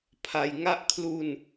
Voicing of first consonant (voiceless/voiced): voiceless